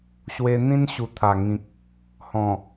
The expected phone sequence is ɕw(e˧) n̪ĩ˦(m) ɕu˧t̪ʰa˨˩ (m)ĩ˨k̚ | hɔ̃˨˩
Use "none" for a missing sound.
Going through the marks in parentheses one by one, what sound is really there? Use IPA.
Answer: e˧, n, ŋ

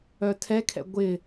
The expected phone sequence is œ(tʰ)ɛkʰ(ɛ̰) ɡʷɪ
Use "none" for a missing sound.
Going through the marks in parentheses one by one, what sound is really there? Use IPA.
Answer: tʰ, ɛ̰

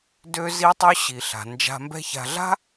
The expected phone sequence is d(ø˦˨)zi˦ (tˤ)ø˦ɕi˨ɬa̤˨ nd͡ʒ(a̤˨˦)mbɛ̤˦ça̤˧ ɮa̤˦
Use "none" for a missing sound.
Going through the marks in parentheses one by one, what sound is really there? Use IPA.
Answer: ø˦, tˤ, a̤˧

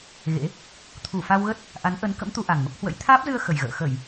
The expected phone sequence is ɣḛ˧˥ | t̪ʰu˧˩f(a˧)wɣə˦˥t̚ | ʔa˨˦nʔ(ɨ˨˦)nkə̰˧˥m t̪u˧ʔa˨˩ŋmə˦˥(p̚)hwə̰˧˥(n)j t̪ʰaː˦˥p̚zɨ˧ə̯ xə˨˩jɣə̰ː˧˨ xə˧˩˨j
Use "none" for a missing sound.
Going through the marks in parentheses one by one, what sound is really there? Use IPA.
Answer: a˧, ə˨˦, p̚, none

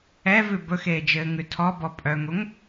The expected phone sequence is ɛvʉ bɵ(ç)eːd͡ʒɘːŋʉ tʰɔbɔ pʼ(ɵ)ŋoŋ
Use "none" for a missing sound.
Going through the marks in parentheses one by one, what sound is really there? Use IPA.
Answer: x, œ

